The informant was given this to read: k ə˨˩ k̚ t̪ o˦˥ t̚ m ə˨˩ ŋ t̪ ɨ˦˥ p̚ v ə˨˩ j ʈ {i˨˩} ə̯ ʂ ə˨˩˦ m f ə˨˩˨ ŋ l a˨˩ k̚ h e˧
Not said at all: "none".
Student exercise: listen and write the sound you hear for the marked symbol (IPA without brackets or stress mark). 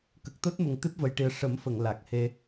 i˨˩